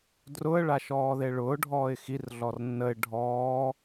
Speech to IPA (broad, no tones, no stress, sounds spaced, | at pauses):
d r ʊ ə̯ ɭ a ʃ ɔː ð e ɭ ʊː ɖʱ ɔː ɪ̯ x i r ɮ ɔ r nː ə ɪ̯ ɖʱ ɔː